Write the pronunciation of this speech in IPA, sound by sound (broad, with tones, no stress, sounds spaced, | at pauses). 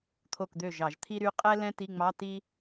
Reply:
t̪ʰ o˥˩ k d̪ ø˥˩ ʒ ɑ˧˩˧ ʒ t̪ʰ i˥ ɾ y˧˥˧ qʼ ɛ˥ l ɛ̃˥ t i˧˥˧ ŋ͡m ɑ˧˥˧ t i˥